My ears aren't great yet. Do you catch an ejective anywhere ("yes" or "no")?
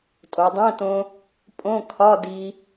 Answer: yes